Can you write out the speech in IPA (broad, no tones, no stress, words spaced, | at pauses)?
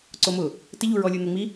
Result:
ǀomʊ | tɪʎuɹɔlʲu n̪ʊŋ͡mi